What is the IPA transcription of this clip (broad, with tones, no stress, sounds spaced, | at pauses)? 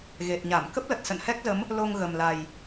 ɣ e˨˩ t̚ ɲ a˧˩ m k ə˦˥ p̚ l ə˨˩ t̚ s ə̰˧˨ n h ɛ˦˥ k̚ z ə˨˦ m | l o˧ ŋ ɣ ə˨˩ m l a˨˩ j